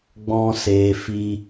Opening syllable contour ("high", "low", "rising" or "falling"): high